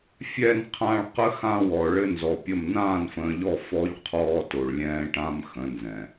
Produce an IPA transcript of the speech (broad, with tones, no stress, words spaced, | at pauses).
fʲɛ˨nqʰã˨ɭ qə˦xã˦wɔ˨ ɭɘ˦nzɔ˨pʲə˦˨m nãː˦˨nfə̃ː˨ʎɔ˦˨ fɔ˦ʎ qʰɔː˦to˨ɭlʲɛ̃ː˦ ʈã˦m xə̃˨˦nzɛ̃˨